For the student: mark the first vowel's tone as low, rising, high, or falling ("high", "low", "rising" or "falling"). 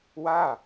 falling